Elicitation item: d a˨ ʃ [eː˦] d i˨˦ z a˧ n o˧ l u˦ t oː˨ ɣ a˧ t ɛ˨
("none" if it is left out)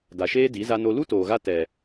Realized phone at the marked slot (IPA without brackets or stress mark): eː˦